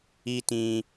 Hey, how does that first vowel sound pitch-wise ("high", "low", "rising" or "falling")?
high